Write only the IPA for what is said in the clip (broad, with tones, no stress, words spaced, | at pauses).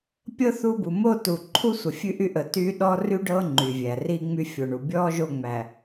pʲɤ˦ θu˦ bu˨mo˦˨ tu˨ǃʰu˦ sʷə˨fʲʉ˦ʔy˦ ʔə˨ ty˦ ɗɔ˦ry˦ɖɤ˦ ŋ͡ǃy˨vʲæ˨ ri˦ŋ͡my˦fʲo˨ɳu˨ bʲɔ˦ ʒo˦˨ŋ͡mæ˨